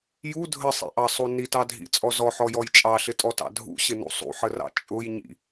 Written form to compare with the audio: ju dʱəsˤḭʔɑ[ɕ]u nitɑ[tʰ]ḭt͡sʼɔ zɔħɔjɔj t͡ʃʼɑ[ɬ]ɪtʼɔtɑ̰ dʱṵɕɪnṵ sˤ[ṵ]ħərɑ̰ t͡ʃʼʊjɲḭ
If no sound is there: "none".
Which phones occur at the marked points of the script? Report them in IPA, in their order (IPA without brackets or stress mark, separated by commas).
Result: sˤ, dʱ, ɬ, ṵ